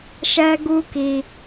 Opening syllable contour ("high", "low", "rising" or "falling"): high